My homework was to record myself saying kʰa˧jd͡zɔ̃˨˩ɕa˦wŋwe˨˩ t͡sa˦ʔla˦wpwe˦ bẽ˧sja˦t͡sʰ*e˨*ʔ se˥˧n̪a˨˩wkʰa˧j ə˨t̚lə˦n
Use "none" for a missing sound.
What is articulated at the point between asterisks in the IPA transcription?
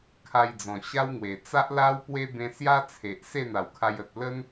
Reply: e˨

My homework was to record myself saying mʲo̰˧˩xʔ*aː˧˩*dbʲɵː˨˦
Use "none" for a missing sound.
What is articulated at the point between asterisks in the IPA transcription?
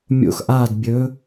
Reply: aː˧˩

